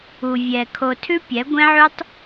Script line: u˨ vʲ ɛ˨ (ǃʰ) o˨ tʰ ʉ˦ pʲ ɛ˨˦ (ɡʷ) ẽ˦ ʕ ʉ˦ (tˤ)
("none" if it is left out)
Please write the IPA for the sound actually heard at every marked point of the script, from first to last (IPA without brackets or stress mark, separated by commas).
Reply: kʰ, ɡʷ, tˤ